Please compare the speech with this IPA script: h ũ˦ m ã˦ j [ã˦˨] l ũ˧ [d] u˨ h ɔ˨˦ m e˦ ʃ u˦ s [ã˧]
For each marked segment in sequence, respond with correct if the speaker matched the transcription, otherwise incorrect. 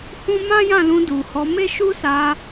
correct, correct, incorrect

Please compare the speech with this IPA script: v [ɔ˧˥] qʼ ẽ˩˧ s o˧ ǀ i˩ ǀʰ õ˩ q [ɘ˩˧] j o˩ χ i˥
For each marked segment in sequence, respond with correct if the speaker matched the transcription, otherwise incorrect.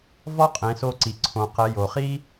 incorrect, correct

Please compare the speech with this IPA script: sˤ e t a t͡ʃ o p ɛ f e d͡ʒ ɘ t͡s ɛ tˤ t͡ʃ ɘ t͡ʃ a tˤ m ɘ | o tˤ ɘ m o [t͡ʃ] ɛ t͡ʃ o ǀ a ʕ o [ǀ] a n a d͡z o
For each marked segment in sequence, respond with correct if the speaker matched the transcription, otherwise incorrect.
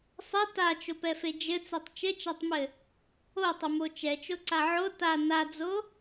correct, incorrect

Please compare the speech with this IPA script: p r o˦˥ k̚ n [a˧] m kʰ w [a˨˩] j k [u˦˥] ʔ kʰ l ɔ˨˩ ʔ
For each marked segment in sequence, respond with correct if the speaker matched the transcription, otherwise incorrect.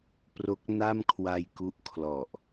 incorrect, incorrect, correct

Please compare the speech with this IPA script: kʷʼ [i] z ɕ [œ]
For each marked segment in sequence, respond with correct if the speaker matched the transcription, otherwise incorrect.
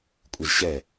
correct, incorrect

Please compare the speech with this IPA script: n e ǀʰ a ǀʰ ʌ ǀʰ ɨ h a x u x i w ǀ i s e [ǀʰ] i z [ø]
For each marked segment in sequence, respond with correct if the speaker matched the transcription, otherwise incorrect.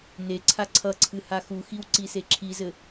incorrect, incorrect

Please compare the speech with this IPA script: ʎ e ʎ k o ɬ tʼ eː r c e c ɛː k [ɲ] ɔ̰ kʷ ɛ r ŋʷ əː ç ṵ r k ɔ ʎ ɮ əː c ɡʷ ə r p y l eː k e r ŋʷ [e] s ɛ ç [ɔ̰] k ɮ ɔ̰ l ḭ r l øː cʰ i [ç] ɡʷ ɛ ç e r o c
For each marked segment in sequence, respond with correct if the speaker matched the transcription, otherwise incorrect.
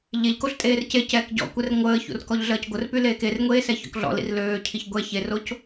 incorrect, incorrect, correct, correct

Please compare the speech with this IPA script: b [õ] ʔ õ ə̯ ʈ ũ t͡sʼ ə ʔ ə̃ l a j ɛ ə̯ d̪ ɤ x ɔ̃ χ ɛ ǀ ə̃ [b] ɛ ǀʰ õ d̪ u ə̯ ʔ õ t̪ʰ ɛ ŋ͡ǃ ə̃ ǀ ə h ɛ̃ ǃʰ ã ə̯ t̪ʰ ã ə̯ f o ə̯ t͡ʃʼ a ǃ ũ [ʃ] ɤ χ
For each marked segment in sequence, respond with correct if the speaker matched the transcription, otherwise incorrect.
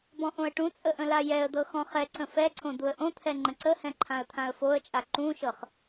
incorrect, incorrect, correct

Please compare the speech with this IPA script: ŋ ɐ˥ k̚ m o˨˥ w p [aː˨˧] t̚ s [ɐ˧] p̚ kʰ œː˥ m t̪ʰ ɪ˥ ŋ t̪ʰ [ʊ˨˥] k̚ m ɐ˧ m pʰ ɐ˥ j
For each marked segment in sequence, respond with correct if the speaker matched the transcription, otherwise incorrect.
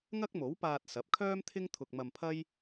incorrect, incorrect, incorrect

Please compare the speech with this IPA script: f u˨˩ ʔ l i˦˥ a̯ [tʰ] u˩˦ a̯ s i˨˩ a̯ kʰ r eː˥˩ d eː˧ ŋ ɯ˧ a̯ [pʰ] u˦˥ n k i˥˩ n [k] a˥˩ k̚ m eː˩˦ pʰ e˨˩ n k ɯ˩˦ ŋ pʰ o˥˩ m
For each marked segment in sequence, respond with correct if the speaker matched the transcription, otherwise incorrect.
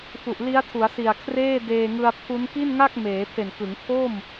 correct, correct, incorrect

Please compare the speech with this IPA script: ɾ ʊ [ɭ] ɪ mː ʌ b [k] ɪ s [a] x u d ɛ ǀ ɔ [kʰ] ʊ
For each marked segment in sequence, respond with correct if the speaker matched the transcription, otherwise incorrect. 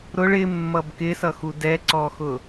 correct, correct, incorrect, incorrect

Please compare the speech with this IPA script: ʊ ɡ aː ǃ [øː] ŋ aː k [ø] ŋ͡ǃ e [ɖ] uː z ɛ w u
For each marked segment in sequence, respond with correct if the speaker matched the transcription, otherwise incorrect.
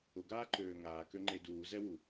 correct, correct, incorrect

